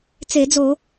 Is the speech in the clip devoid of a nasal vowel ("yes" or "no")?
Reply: yes